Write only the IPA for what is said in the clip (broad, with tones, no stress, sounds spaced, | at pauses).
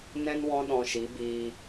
n ɛ̃˦ n w ɔ̃˦ ɗ ɔ̃˧ ʃ i˨˦ b iː˧